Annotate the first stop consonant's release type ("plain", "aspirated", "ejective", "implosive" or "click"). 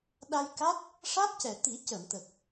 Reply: implosive